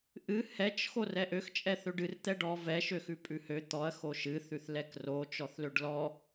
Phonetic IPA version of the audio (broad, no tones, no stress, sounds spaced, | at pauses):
ʔ ɨ h ɛ t͡ʃ x o r ɛ ʔ ø x t͡ʃʼ ɛ θ ø ɖ ɨ r t̪ ɛ ɖ ɔ v ɛ ʃ ø x ʉ pʼ ʉ h ø t̪ ɔ ɐ̯ x o ʃ ɨ θ ʉ θ l ɛ k r o t͡ʃ ɔ θ l ø ɖ l ɔ